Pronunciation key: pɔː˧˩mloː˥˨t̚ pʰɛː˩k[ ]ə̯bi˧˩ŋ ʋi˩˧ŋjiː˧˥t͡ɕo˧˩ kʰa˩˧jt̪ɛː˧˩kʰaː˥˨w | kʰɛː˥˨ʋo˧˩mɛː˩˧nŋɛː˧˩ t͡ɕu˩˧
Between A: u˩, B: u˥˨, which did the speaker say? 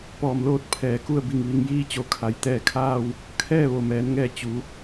B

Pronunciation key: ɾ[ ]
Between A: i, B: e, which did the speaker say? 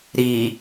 A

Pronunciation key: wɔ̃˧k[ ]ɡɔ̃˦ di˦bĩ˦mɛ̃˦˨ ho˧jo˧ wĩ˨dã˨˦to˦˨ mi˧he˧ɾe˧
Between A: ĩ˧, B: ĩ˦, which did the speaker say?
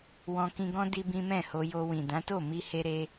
A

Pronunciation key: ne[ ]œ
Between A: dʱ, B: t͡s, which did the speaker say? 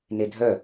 A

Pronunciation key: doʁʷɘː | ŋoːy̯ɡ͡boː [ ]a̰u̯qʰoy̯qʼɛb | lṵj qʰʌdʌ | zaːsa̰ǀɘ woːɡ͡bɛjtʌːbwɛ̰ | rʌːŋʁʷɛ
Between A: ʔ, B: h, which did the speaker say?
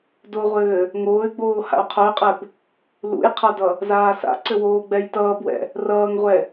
B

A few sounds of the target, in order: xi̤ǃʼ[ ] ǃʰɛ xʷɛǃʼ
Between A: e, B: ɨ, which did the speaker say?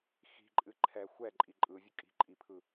B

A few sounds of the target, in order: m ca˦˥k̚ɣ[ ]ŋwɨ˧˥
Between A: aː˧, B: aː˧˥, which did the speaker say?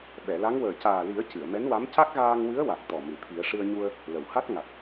A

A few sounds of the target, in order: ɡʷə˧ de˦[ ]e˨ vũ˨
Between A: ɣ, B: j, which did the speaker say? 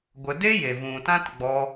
B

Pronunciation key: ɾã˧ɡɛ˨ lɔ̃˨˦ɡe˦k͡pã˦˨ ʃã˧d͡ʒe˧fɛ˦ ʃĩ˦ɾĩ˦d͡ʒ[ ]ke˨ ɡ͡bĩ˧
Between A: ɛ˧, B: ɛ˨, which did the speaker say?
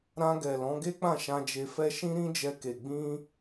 A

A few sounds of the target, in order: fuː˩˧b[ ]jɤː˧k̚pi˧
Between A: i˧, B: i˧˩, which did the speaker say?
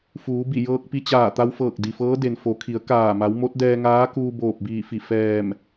B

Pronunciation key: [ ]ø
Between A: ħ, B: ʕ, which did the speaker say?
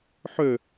A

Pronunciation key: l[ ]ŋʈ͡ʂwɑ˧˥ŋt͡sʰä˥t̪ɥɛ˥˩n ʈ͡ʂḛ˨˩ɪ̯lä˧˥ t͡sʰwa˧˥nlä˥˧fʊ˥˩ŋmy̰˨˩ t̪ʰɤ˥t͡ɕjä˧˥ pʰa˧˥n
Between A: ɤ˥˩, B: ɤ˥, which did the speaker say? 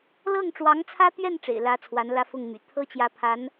A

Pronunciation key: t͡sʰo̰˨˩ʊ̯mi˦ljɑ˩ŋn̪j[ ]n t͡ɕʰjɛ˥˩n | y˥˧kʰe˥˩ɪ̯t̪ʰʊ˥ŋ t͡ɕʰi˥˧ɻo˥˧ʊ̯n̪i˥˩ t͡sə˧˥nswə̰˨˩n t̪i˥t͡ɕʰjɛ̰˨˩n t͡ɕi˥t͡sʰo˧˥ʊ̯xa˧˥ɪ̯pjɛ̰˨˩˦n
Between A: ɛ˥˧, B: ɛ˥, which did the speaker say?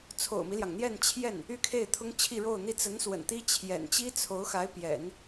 A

